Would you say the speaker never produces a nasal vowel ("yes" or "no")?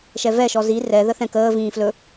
no